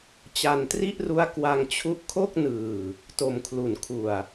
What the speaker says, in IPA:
t͡ɕa˧ntri˥˩ʔru˦˥a̯ kwa˧ŋt͡ɕʰu˦˥ʔkʰo˥˩k̚nɯː˨˩ | to˧mkʰlu˨˩n kʰu˨˩a̯

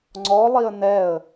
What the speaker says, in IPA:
ŋ͡ǀɔlˠiə̯ nɛə̯

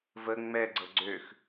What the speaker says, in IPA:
və ŋ͡mɛɡ͡ǀɤ ɡ͡ǀøx

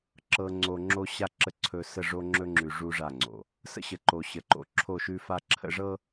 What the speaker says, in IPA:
ǁɤ˨ŋ͡ǀo˨ ŋ͡ǁo˦ɕa˦ǁə˦˨ ǀʰɵ˦ sə˦˨ʐo˦ŋ͡ǁɵ˦ŋ͡ǁʉ˨ ʐu˦ʐa˦˨ŋ͡ǀo̰˨ | sə̰˦ɕə˨ǃo˨ ɕə˨ǃo̰˨ ǁʰo˦˨ʃʉ˦fa˦ ǁʰə̰˦ʐɤ˦

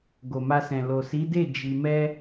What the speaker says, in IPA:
ɡo˨ma˧sɛ̃˨ lo˨si˨˦de˦˨ d͡ʒi˧ mɛ˦

